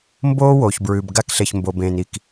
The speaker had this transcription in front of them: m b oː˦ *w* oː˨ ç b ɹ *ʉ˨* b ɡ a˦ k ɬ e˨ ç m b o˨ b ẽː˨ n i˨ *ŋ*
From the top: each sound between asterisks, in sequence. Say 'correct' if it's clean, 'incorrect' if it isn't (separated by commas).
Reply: correct, correct, incorrect